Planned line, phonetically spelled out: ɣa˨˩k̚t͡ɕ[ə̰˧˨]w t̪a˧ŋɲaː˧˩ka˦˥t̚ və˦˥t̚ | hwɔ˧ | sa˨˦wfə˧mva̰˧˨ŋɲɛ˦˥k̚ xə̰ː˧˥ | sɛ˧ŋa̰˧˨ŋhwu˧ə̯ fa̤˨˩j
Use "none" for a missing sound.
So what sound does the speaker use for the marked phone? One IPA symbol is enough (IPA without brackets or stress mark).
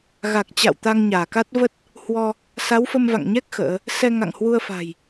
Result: a̰˧˨